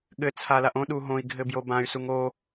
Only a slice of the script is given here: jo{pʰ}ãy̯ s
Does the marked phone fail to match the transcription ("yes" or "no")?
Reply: yes